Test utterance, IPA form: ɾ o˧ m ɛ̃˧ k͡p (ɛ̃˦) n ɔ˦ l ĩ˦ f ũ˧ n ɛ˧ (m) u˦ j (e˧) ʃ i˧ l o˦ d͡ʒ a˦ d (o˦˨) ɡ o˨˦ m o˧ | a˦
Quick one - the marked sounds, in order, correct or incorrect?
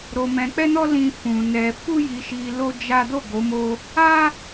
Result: incorrect: ɛ˦, incorrect: f, incorrect: i˧, correct

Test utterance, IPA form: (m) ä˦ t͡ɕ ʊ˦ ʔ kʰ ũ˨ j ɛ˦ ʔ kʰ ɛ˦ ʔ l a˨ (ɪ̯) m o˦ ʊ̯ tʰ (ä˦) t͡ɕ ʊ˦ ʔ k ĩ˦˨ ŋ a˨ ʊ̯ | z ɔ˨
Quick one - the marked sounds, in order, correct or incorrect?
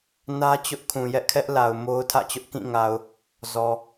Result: incorrect: n, incorrect: ʊ̯, incorrect: ä̰˦˨

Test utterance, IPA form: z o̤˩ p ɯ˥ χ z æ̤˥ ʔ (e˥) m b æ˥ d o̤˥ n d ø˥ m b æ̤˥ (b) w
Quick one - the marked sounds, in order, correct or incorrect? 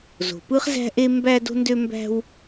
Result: correct, incorrect: none

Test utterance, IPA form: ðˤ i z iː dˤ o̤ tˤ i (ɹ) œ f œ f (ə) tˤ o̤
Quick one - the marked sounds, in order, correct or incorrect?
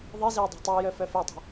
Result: incorrect: j, incorrect: ø

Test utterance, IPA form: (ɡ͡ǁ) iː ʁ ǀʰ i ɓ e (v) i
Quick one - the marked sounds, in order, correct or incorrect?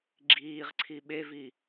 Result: correct, correct

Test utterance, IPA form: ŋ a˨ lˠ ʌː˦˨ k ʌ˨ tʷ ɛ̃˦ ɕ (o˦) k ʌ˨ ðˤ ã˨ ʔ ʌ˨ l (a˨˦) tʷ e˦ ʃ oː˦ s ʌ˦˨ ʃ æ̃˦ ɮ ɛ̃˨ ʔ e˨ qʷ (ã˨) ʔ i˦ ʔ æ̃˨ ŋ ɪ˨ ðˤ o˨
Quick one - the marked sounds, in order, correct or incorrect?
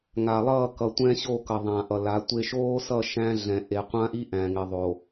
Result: incorrect: o˦˨, correct, incorrect: ã˦

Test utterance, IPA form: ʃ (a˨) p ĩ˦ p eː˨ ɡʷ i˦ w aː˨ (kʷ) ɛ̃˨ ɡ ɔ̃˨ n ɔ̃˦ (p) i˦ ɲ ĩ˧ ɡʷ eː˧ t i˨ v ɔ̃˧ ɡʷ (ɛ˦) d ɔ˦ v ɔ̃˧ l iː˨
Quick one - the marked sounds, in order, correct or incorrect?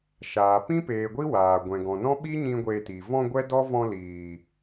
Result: incorrect: aː˨, incorrect: ɡʷ, incorrect: ɓ, correct

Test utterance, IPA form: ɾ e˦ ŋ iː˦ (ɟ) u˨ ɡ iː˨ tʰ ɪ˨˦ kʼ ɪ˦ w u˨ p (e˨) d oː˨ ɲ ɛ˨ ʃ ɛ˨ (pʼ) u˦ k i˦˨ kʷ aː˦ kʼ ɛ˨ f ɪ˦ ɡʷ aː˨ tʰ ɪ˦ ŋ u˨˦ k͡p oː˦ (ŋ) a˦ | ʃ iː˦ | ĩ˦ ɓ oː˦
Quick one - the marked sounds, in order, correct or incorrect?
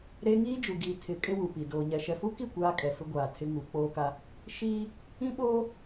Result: incorrect: d͡ʒ, incorrect: i˨, incorrect: f, incorrect: k

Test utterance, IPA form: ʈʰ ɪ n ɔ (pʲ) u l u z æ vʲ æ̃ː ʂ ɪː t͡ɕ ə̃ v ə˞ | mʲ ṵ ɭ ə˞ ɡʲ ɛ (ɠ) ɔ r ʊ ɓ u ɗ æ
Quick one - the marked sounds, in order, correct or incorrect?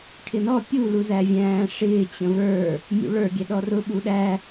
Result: correct, incorrect: ɗ

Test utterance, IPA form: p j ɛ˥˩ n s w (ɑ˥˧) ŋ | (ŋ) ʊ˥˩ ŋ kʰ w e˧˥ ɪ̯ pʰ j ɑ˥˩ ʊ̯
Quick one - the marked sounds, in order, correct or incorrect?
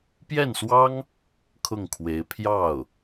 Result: incorrect: ɑ˥, incorrect: kʰ

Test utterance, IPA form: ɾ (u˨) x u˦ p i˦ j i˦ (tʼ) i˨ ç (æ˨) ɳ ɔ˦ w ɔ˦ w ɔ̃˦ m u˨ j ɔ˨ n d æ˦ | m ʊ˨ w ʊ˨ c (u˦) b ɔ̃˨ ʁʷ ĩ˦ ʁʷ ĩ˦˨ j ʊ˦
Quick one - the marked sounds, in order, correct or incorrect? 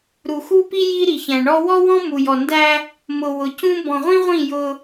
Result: correct, incorrect: ɾ, incorrect: æ̃˨, incorrect: ũ˦

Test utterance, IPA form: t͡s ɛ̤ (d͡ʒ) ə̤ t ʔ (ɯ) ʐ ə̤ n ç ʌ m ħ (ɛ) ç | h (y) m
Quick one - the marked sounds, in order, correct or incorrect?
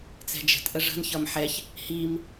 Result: correct, incorrect: ə, correct, incorrect: i

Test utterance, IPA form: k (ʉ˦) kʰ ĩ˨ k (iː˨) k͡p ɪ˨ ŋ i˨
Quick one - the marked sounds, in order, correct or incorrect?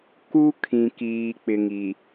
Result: incorrect: u˦, correct

